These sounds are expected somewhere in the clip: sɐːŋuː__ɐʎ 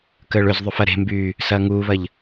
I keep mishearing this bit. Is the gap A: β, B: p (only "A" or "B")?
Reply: A